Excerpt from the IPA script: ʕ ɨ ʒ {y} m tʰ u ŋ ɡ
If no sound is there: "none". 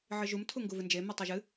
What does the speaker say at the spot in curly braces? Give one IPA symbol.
u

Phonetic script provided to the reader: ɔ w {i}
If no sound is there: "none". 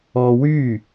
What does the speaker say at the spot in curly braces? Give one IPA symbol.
y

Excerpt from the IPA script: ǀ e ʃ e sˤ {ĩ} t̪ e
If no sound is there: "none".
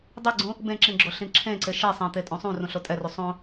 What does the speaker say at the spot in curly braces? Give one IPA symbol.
ẽ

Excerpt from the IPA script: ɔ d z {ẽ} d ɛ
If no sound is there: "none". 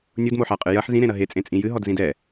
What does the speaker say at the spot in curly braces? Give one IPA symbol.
ĩ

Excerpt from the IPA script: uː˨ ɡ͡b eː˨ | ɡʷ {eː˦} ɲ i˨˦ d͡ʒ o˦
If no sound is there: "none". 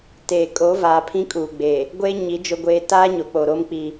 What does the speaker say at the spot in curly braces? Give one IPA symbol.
e˦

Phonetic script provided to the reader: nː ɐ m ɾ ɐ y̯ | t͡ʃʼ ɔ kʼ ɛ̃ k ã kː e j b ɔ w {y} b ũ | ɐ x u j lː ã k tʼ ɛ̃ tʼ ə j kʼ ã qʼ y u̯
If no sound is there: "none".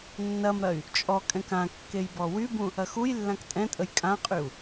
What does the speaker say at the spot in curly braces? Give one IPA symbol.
y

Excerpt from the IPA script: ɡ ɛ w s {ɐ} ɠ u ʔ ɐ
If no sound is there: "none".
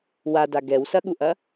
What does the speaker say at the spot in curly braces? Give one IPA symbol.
ɐ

